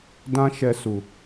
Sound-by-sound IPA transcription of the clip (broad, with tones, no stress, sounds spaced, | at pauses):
d ã˦ ʃ ɛ˧ s u˨